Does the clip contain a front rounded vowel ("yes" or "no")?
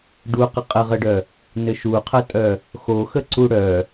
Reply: yes